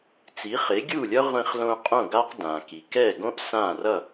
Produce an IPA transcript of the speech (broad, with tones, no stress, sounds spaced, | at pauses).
t͡s i˩˥ χ e˩˥ ɡʲ u˥˩ lʲ ʌ˥ ʁʷ ĩ˧ χ l õ˧ qʼ õ˥˩ ɡ a˥ q d ã˩ k i˩ k ɛ˥˩ ɡ õ˥ ʔ s ã˥˩ r ʌ˥˩